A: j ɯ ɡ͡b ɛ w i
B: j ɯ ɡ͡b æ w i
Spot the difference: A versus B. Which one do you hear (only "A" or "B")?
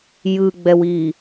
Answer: A